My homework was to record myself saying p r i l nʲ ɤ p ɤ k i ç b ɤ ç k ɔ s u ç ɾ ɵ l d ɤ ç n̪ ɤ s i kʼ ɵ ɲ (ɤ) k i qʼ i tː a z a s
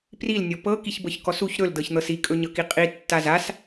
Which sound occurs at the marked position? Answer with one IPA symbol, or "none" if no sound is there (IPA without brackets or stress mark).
ɤ